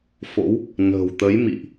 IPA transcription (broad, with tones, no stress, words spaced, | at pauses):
fo̰˧˥w | nə̤˨˩wt̪ə˨˦j mḭ˧˨ʔ